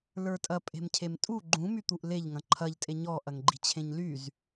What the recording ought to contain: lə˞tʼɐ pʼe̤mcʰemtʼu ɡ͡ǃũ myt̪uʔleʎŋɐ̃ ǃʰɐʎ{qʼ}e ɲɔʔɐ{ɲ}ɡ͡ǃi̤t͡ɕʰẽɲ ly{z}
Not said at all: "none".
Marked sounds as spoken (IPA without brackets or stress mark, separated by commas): tʼ, ŋ, z